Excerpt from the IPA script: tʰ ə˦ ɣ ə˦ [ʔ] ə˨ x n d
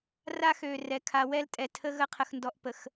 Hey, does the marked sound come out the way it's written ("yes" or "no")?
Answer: no